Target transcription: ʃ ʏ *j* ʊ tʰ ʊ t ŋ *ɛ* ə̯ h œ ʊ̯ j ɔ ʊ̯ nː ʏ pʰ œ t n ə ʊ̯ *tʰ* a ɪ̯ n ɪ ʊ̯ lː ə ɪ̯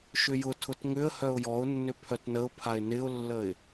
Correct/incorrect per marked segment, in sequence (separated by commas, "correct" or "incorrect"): correct, incorrect, incorrect